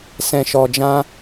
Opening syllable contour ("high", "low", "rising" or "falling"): low